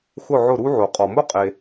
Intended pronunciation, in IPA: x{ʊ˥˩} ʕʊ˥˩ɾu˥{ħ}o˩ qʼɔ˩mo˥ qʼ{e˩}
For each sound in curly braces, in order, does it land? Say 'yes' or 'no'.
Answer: yes, no, yes

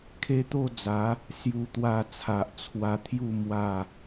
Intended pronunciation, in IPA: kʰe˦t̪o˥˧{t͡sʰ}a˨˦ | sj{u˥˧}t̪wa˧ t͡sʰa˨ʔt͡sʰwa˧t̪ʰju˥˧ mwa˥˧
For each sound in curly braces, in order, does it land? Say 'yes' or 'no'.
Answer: no, no

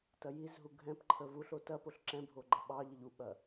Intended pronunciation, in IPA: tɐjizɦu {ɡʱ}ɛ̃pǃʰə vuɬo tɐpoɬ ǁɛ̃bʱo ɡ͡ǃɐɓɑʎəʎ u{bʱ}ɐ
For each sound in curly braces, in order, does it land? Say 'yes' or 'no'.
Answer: yes, no

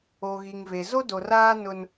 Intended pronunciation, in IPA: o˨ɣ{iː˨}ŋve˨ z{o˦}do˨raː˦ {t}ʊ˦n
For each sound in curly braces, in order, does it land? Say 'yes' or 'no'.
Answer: no, yes, no

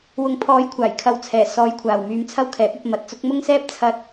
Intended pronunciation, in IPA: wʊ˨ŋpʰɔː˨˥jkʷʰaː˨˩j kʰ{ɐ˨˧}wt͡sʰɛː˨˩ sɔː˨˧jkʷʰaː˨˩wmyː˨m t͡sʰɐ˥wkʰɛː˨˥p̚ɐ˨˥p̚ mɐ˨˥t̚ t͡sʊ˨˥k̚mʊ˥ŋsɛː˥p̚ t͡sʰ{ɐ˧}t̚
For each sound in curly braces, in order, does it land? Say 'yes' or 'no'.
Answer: yes, yes

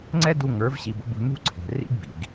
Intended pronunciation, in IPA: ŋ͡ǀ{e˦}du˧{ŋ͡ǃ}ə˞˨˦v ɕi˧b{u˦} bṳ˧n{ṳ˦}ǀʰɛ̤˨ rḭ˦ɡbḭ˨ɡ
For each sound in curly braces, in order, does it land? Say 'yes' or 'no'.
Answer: no, no, no, yes

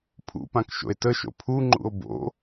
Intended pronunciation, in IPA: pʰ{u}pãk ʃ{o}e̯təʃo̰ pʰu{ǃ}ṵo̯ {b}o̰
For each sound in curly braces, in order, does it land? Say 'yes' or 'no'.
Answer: no, no, no, yes

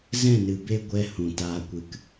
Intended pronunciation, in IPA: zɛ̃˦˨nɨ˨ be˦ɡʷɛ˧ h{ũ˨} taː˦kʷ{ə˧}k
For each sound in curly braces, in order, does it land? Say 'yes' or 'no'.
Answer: yes, no

